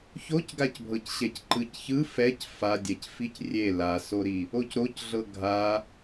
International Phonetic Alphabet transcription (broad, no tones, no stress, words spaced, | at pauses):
çocɡacbʱɤcɕɛc ǃɯcçɯ fɛc fadʲɛcfic rʲe lasoɾi | ocɾocɮɤ ɡʱa